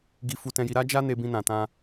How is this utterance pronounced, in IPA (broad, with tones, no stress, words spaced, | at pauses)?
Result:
ɡi˧fu˧tɛ̃˧ji˧ ɾa˦d͡ʒa˦ ne˧bĩ˧nã˨tã˧